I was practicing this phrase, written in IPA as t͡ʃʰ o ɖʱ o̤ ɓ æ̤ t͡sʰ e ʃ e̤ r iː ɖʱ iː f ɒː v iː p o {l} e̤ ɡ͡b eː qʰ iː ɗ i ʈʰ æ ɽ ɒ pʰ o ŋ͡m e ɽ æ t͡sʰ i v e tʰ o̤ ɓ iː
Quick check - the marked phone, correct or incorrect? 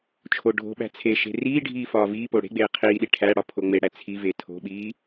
incorrect